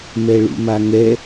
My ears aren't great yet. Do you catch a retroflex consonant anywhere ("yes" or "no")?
yes